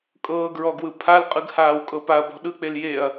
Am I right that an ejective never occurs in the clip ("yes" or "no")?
no